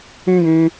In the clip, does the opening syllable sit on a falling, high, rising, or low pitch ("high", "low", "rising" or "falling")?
high